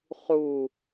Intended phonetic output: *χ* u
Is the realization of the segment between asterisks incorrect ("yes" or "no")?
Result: no